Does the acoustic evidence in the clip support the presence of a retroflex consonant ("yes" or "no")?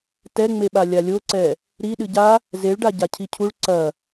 yes